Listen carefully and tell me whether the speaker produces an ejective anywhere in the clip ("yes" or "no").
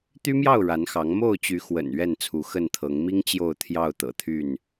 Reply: no